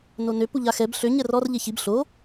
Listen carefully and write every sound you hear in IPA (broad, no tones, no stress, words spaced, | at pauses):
nonø puʎaxɛb ɬø ɲɛrɔr ʎeçib ɬo